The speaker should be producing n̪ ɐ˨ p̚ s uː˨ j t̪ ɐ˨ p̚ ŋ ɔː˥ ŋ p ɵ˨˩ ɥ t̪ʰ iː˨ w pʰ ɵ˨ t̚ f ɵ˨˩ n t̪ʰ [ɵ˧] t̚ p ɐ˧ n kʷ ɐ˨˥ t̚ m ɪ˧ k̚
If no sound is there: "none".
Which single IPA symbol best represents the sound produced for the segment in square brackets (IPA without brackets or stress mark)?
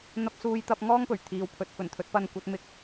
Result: ɵ˨˥